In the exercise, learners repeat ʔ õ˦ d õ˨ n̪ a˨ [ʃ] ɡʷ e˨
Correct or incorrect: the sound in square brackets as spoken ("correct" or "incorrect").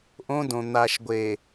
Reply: correct